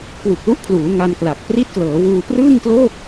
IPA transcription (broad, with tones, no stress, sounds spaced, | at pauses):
k w u˨˩ k̚ l u˦˥ ʔ pʰ l uː˩˦ ŋ a˧ n k l a˨˩ k̚ p r i˦˥ t̚ k l ɤː˩˦ w uː˧ p r ɯː˥˩ ŋ k l oː˥˩ k̚